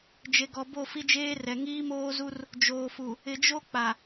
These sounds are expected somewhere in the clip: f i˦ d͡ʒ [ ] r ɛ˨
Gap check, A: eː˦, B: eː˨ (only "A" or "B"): A